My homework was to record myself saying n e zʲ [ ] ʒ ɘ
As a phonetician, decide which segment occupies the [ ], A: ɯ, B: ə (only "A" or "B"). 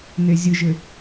A